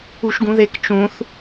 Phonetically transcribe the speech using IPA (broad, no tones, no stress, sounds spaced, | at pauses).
u ʃ ɡ ũ ð e k t͡ʃ ũ θ